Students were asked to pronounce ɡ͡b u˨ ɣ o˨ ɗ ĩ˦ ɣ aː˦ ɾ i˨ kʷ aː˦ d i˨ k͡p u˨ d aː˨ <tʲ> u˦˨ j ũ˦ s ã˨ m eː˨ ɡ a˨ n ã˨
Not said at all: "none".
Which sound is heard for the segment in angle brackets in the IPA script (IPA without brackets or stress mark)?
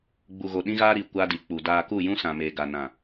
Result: k